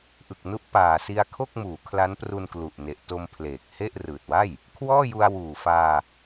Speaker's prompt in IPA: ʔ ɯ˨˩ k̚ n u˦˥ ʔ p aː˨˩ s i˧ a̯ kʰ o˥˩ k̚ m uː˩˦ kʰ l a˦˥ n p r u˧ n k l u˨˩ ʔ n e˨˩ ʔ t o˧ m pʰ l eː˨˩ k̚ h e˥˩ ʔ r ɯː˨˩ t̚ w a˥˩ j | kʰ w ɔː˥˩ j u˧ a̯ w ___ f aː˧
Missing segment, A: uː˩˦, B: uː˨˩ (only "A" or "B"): B